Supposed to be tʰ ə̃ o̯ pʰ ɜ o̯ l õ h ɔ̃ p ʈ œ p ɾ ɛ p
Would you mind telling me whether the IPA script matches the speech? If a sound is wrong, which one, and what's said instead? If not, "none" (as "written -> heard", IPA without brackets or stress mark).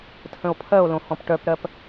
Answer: ɛ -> ɜ